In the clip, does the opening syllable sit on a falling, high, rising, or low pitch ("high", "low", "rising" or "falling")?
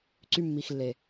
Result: high